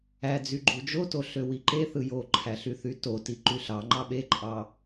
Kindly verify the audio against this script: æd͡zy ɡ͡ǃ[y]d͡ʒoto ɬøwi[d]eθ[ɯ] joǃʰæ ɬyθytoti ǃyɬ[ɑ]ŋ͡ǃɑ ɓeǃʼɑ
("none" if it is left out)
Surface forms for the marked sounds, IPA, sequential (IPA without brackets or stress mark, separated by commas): u, ǃ, ɯ, ɑ